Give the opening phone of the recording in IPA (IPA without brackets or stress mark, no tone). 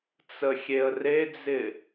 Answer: t͡s